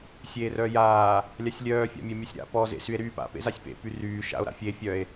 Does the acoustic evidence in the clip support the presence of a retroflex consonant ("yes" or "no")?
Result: no